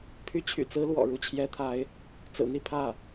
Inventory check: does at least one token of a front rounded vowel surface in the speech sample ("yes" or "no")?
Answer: yes